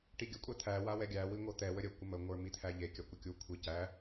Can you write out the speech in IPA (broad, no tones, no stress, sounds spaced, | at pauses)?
ʈ i ɡʲ ə kʷʼ æ t̪ʰ æ w a w ɛ ɡʲ æ w i ŋʷ ɤ t̪ ɛ w ə ɾʲ ə kʷ ə m ə ŋʷ ə˞ m i t̪ʰ æ ʎ e kʲ a kʷ ə kʲ u kʷʰ i c æ